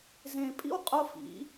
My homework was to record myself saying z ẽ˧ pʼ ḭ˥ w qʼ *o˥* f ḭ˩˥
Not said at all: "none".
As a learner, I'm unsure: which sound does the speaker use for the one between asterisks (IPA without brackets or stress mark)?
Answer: o˥